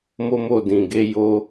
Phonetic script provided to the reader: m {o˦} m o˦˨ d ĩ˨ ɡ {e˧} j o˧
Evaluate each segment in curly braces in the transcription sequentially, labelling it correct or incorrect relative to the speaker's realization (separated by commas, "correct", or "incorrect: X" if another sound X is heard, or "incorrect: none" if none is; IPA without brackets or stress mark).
correct, correct